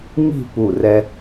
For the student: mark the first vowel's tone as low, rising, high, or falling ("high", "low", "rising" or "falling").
falling